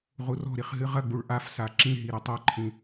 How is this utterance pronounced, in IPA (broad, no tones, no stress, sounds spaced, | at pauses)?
ʁ u r ɔ̤ ɾ i χ ɦ ɨ ʁ ɐ ɡ͡b u ɭ ʔ a f s a ǁ ĩ ɦ i ɾ ɘ tˤ a ǃʰ ĩ